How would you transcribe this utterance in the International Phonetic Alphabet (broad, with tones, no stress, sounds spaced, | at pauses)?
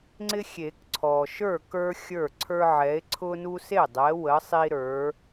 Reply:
ŋ͡ǀ ɪ˦ xʲ e˨˩˦ k ǀʰ ɔ˨ ʃ ə˞˥˩ k ə˞˦ xʲ ə˞˥˩ ǀʰ ə˞˦ ʕ ɛ˨˥ e̯ ǀʰ ʊ˦ n u˦ s e˥˩ dˤ ɛ˨˥ w ə˨˥ sˤ i˦ ɾ ə˞˨˥